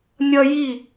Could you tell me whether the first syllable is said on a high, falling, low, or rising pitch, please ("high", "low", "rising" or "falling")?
high